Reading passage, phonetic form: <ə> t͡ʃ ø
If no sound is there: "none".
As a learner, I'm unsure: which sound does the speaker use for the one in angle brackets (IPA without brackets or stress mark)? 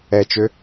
ɛ